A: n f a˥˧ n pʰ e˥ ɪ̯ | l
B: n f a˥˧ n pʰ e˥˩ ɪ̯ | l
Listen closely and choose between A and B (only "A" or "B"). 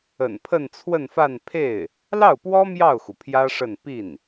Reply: B